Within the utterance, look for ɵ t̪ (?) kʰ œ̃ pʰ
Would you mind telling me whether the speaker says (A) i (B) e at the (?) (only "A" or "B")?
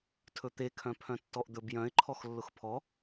B